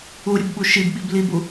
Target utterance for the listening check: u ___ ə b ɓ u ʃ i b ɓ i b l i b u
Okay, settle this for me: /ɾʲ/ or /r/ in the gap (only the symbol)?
ɾʲ